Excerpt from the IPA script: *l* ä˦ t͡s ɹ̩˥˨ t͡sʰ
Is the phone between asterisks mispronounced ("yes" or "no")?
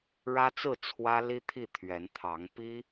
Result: yes